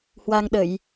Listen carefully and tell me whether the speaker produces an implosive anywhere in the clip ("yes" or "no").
yes